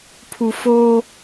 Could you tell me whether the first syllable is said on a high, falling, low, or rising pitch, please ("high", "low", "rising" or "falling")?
low